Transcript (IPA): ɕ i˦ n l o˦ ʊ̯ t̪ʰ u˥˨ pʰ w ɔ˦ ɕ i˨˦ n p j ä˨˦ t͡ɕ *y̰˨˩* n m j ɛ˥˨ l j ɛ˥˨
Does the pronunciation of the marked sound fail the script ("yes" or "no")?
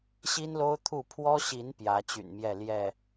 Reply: no